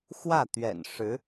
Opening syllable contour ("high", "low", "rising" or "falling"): falling